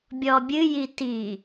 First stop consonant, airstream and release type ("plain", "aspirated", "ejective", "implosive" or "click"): plain